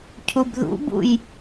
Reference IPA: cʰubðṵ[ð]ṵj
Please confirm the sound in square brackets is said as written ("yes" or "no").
no